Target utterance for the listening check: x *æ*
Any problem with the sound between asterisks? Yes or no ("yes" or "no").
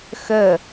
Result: yes